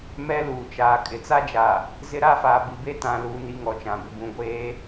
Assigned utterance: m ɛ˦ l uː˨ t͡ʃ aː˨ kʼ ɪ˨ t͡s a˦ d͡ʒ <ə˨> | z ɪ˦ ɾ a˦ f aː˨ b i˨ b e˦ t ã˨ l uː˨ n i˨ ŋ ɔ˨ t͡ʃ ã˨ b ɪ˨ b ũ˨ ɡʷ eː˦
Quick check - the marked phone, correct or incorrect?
incorrect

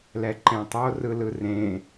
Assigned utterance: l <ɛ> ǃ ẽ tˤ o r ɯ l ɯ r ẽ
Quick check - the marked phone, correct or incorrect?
correct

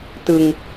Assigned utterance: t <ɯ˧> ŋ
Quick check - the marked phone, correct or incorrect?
correct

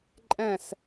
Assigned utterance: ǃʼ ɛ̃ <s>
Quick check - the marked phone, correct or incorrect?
correct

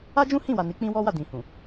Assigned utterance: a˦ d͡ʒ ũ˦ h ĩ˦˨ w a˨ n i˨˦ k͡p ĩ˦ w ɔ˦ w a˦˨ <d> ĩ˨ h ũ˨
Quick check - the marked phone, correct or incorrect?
correct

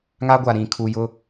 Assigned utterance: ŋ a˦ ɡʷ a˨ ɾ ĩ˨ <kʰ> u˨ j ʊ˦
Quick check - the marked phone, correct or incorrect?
correct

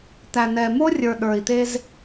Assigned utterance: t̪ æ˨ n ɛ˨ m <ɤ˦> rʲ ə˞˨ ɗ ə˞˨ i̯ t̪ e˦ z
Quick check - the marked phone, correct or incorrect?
incorrect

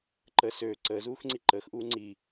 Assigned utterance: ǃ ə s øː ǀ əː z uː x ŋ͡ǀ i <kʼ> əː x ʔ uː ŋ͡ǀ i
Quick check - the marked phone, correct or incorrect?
incorrect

